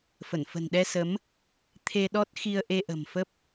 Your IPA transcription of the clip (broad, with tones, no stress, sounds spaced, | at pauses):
f ə˧˩ n f ə̤˨˩ n ɗ ɛ˧ s ə˨˦ m | t̪ʰ e˧ ɗ ɔ˦˥ t̚ x i˧ ə̯ ʔ e˧ ʔ ə̤˨˩ m f ə˦˥ p̚